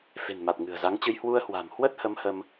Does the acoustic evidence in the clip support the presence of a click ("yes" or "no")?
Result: no